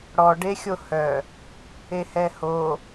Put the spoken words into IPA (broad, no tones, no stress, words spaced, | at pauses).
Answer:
ɽɔ ɖexʲohœ | ehɛho